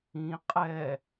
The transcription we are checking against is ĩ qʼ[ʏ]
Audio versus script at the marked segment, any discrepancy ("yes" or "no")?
yes